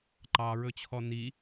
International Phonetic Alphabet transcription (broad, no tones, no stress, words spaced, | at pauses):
ǃɑɹɵt͡ɕʰɔ ni